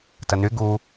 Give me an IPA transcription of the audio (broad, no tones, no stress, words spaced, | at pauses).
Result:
təny ɡu